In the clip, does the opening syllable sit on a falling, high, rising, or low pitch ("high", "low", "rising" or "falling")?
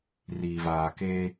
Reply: low